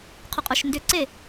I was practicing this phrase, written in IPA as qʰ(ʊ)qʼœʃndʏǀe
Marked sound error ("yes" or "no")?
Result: no